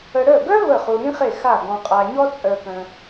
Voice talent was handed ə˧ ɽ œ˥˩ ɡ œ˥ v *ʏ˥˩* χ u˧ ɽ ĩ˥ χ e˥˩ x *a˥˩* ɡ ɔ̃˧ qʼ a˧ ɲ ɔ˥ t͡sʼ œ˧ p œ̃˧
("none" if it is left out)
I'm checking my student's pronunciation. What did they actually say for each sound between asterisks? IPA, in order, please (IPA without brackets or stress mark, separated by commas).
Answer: ə˥˩, a˥˩